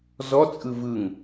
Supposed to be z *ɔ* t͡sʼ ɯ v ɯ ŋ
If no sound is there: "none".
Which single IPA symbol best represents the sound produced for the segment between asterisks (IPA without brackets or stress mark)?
ɔ